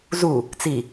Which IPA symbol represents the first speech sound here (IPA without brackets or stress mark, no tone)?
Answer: z